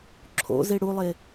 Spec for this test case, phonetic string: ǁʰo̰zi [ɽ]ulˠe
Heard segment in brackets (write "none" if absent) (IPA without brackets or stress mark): ɽ